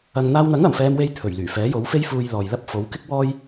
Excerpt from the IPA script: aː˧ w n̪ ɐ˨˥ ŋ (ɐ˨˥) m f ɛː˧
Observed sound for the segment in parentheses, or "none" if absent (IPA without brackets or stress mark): ɐ˨˩